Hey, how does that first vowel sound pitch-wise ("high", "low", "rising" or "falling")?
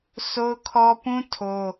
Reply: high